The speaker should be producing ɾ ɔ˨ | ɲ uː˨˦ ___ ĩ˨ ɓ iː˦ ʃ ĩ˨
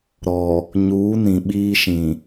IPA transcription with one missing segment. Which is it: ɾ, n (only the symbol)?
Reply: n